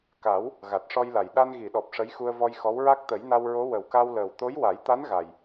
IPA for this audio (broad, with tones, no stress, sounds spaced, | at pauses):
k a˨˩˦ w | ɣ a˨˩ t̚ ʂ ɔ˧ j l a˨˩ j ɗ a˧ n ɣ i˨˩˨ ɗ ɔ˨˩ p̚ ʂ ə˧˥ j x u˧ ə̯ v ɔ˧ j x ɔ˧˥ w ɹ a˦˥ k̚ t̪ ə˨˩˦ j n a˧ w ɹ o˧˥ w ə˨˩ w k a˧ w l əː˨˩ w t̪ o˧˥ j w a˨˩˦ j t̪ a˧˥ n ɣ a˨˩ j